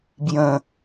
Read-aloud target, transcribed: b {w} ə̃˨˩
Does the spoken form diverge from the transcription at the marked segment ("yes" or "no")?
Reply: yes